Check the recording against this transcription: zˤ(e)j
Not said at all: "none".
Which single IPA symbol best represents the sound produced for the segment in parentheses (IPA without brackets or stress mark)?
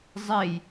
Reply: e